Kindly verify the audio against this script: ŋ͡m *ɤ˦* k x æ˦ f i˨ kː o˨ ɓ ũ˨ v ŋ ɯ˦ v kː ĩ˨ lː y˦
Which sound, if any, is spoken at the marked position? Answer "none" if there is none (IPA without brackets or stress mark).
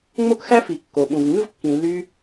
o˦